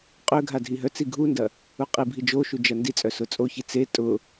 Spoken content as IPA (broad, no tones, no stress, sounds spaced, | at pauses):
qʼ ø ɡʱ a dʱ i ɦ œ t͡s i ɡʱ u n d ɐ | u qʼ i bʱ i d͡ʒ o ʃ u d͡ʒ ɐ n d i t͡sʼ œ s ʊ t͡sʼ o ç i t͡s e tʼ ʊ